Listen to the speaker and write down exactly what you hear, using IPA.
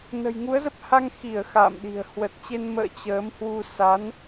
n ə̤˨˩ j ŋ u˨˦ ə̯ z ə˦˥ p̚ h a˧ ŋ x i˧˩ ə̯ x a̰ː˧˨ m ɗ i̤˨˩ ə̯ h w ə˨˩ t̚ t͡ɕ e˧ n m ə̰ː˧˨ t͡ɕ əː˨˦ m h w u˧ s a˨˦ n

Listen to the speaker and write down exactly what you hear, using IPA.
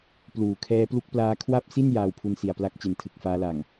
p l uː˨˩ kʰ ɛː˦˥ p l u˦˥ k̚ p l aː˦˥ kʰ w a˥˩ p̚ s i˥˩ n j aː˧ w pʰ u˧ n s i˨˩ a̯ p l a˦˥ k̚ t͡ɕ e˩˦ n tʰ ɯ˨˩ k̚ f aː˦˥ l a˨˩ ŋ

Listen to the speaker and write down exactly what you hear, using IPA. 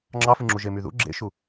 ŋ͡ǁ ɑ f ɯ ŋ͡ǁ u ʒ e m y ð ṵ ɡ͡ǁ ḛ ʃ u

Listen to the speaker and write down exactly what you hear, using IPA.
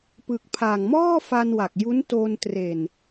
p ɯ˨˩ k̚ pʰ a˨˩ ŋ m ɔː˥˩ f a˧ n w a˨˩ k̚ j u˦˥ n t o˧ n t r e˨˩ n

